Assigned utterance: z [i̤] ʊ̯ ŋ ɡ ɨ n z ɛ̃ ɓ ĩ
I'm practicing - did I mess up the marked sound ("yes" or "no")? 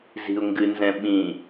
no